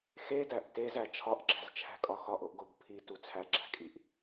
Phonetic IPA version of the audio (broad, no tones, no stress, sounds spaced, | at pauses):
x e d æ ʔ t e z æ t͡ʃʰ ɒ ʔ ɡ͡ǁ æ̤ z t͡ʃʰ æ̤ kʼ ɒ x ɒ ʔ o ʔ ɡ o b pʰ i t u t͡sʰ æ ɡ͡ǁ æ̤ kʼ i ʔ